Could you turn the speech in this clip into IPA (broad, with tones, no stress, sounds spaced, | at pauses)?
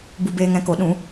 b u˧ b eː˧ ŋ ɛ̃˧ k o˨˦ ɗ ũ˨˦